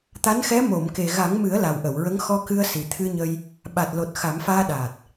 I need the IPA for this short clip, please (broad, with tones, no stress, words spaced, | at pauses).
t̪a˧˥nxɛ˧˥ mo˨˩˨mke˨˩ ɣa˨˩˦ŋmɨ˨˩˦ə̯ la˨˩wʔə˨˩˨wɹə˧˥ŋ xɔ˧kɨ˧ə̯ si˨˩t̪ʰɨ˧ɲə˧j | ɓa˨˩t̚lo˨˩t̚ xa˨˩˦mfaː˧ɗaː˨˩t̚